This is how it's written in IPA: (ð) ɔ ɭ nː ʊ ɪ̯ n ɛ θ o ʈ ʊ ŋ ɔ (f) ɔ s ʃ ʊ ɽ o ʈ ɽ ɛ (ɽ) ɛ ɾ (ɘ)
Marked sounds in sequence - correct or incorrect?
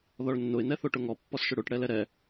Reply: correct, incorrect, incorrect, incorrect

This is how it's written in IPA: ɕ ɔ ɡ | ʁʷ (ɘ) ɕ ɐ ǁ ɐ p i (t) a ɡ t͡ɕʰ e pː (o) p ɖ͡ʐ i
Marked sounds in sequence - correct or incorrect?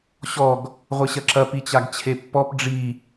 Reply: correct, incorrect, incorrect

